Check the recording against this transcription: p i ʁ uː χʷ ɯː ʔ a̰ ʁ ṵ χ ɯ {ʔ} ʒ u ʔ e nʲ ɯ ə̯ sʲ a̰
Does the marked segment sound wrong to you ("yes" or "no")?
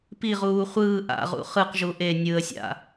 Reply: yes